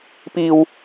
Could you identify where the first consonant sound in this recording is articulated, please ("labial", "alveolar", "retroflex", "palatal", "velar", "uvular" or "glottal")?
labial